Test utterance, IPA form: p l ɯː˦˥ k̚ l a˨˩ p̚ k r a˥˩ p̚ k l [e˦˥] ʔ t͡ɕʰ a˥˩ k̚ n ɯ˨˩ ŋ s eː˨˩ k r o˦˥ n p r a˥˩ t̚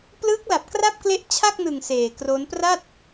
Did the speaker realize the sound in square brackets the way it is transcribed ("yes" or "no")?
yes